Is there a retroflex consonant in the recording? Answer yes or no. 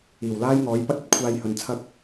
no